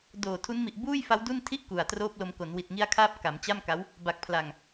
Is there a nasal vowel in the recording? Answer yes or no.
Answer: no